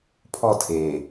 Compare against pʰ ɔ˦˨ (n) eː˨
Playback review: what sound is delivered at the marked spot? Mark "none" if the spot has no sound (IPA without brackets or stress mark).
tʰ